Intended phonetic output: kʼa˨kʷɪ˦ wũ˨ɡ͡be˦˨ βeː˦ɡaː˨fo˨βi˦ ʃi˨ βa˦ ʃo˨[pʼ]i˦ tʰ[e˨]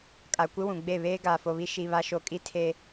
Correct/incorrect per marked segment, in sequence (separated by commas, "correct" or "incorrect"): incorrect, incorrect